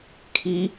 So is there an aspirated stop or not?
yes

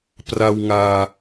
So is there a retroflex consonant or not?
no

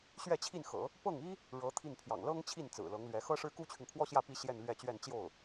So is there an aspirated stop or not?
yes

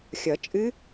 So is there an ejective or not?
yes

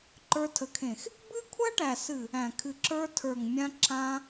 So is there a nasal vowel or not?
yes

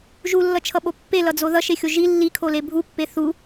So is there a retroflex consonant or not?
no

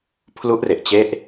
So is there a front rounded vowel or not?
no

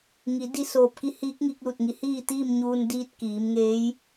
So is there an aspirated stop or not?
no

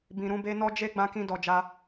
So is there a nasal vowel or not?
yes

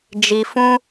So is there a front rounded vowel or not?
no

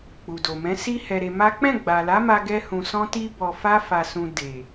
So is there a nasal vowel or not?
yes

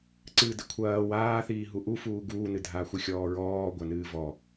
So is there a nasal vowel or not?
no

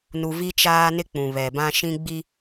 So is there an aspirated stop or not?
no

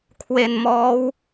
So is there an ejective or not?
no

